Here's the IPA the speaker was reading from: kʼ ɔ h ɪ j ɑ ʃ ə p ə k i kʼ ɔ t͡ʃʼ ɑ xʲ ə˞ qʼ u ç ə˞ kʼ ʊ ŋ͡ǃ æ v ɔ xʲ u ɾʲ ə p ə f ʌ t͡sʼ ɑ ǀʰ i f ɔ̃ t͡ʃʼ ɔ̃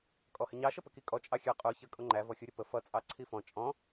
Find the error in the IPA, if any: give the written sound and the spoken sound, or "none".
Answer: j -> ɲ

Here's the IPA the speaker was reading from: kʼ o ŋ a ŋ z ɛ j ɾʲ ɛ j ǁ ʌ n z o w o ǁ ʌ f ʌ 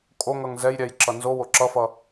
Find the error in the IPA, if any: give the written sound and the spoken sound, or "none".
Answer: a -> ʌ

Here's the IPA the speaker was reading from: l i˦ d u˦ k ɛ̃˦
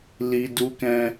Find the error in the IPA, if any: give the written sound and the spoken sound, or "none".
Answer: none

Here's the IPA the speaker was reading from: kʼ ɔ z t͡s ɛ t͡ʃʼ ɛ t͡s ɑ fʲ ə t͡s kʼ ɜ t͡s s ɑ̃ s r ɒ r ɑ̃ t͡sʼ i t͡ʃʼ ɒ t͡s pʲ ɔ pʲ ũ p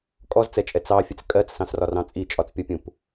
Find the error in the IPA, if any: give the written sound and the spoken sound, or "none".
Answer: none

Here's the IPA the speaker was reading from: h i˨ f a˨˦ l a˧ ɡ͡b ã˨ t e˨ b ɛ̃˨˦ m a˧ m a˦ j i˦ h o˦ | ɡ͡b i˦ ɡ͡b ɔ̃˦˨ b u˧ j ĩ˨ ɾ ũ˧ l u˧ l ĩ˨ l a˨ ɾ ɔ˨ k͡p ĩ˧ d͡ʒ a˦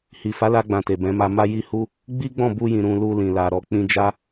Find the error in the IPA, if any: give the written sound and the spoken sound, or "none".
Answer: o˦ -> u˦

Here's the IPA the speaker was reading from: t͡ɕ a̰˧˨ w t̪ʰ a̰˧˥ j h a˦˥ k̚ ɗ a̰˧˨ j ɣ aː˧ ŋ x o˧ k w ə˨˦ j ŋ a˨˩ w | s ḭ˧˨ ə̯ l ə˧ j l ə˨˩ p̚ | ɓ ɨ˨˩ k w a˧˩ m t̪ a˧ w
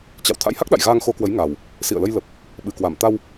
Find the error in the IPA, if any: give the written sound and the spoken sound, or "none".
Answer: none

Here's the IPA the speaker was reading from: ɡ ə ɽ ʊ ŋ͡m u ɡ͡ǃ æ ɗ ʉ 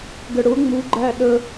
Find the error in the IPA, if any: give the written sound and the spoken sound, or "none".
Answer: ʉ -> ə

